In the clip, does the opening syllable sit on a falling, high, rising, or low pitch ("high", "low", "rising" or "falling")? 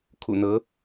low